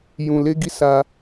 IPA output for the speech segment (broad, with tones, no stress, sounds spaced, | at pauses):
j ũ˨ l e˧ ɡ i˧ s a˧